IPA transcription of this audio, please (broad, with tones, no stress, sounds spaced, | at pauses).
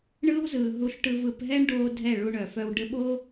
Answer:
ɳ ɯː˦ w z ɯː˨ ɦ u˧ ɬ ʈ ɯ˧ v ɯ˧ p ɦ ɛ˦ ɳ ɖ oː˧ dʱ ɛ˦˨ ɭ u˧ ɳ œ˨ f œ˧ w ɖ ɘ˧ ɓ o˦